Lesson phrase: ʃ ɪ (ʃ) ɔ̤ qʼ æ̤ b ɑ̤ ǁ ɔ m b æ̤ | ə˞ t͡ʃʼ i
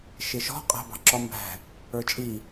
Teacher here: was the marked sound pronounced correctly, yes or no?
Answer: yes